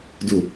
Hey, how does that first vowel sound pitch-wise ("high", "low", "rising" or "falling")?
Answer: low